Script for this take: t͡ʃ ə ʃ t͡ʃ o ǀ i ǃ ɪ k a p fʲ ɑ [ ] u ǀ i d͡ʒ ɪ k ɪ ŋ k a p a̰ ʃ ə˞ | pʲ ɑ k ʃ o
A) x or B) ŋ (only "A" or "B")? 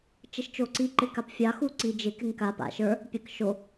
A